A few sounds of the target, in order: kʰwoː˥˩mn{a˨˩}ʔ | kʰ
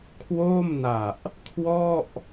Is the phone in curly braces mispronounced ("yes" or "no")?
no